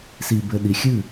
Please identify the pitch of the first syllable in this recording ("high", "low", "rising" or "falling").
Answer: low